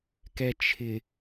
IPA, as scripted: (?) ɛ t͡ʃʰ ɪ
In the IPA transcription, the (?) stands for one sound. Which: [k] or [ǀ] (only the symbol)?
k